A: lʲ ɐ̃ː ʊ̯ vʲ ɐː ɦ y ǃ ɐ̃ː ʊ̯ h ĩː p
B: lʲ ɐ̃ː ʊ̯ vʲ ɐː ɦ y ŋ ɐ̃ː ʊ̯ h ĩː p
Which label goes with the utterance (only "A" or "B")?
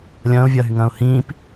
B